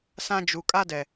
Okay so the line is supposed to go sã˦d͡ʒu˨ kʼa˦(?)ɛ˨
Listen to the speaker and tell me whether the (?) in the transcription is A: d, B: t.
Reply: A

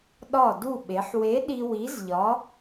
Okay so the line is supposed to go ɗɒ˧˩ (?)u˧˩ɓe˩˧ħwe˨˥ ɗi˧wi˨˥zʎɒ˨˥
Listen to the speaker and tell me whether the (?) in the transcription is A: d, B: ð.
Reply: A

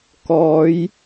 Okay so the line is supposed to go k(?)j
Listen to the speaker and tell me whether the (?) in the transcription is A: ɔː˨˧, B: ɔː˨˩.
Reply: A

